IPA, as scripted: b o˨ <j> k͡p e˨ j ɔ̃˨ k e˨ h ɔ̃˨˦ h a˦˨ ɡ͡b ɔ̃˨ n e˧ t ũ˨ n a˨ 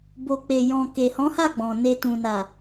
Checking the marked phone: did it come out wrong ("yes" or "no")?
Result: yes